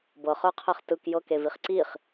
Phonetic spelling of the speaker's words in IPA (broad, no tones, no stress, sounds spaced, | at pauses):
b ɤ χ ə˞ qʰ ɛ χ t ɯ k j ɤ k e v i χ ǀ i χ